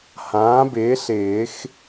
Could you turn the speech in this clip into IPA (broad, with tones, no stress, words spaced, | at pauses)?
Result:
hãː˩˥bɪː˩˥ɬɪː˨˩˦x